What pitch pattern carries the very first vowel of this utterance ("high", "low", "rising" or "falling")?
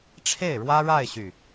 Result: falling